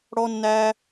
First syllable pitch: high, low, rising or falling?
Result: high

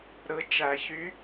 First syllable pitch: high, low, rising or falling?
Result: rising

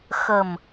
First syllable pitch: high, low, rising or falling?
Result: low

